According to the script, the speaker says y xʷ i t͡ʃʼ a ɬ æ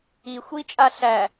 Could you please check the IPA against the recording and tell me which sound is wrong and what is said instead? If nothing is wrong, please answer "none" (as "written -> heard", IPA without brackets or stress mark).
y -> i